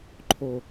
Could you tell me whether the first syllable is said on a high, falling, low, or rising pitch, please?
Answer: low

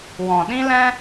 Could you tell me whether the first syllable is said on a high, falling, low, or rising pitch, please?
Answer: low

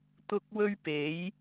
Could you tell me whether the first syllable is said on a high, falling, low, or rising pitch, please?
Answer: low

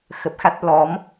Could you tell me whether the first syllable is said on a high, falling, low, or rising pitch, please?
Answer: low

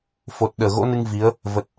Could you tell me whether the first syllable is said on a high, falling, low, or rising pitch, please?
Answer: low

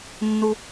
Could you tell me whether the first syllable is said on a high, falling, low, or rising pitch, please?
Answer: low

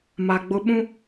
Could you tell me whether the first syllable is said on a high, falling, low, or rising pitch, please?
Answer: low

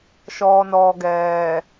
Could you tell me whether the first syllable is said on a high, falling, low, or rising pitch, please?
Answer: low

